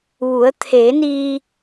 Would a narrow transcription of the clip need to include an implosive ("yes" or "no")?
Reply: no